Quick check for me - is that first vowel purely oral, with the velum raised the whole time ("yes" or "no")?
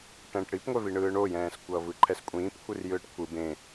no